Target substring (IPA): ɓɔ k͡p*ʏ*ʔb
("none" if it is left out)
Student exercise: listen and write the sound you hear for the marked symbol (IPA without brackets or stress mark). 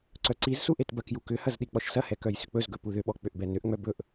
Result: ʏ